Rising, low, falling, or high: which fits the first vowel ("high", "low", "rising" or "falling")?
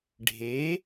rising